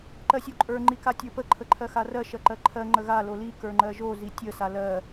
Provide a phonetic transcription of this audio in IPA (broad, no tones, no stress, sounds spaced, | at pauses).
ǃ ɜ sʲ o ǃʼ ə˞ ŋ͡ǃ i k a tʲ ə˞ p ə ǃʰ ə ǃʰ ɜ x a r ɜ ʃ ɜ ǃ ɜ ǃʰ ɜ ŋ͡ǃ ə ɣ a l o l i k ə˞ ŋ͡ǃ ɜ ʒ o z i tʲ ə s a l ɜ